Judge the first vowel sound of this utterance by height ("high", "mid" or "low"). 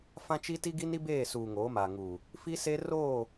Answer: low